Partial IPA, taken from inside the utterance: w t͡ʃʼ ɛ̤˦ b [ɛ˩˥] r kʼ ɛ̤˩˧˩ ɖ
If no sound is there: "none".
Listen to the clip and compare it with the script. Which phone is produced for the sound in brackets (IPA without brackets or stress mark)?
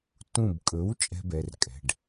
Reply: ɛ˩˧˩